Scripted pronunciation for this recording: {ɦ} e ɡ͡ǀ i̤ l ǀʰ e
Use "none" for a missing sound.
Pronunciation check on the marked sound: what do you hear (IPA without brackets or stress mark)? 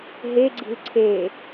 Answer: ɦ